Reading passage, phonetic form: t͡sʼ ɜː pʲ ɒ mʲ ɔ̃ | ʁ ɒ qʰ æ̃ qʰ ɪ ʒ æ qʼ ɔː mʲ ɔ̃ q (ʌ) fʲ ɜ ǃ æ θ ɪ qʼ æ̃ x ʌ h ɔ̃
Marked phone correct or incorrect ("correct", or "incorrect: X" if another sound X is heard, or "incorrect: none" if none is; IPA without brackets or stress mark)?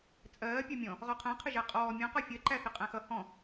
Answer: incorrect: ɒ